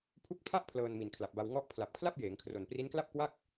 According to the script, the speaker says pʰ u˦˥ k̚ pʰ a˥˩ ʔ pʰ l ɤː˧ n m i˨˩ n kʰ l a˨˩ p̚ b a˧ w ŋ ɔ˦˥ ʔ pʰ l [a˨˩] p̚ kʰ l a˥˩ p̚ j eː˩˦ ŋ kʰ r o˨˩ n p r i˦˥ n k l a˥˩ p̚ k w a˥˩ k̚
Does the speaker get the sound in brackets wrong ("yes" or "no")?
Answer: no